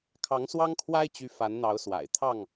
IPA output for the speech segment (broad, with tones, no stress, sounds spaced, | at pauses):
kʰ ɑ˨˦ ŋ s w ɑ˦ ŋ kʰ w a˦ ɪ̯ t͡ɕ y˨˦ f a˨˦ n n̪ ɑ˨˦ ʊ̯ s w a̰˨˩ ɪ̯ t̪ʰ ɑ˥˨ ŋ